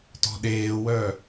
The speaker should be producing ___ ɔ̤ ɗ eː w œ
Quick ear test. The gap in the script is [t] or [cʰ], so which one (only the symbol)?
t